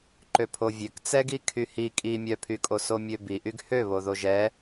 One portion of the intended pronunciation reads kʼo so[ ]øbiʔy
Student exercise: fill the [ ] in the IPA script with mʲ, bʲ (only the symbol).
mʲ